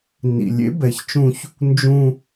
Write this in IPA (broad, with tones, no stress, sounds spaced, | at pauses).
n ḭ˨ lʲ ḛ˨˦ b ɛ˨ ç t͡ʃ ũ˦ ç | n d͡ʒ ũ˦